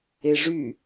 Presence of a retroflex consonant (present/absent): present